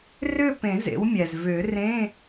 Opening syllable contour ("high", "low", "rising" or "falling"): falling